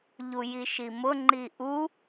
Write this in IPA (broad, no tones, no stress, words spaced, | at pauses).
ʎujiʃimʊ ŋ͡ǃiʔu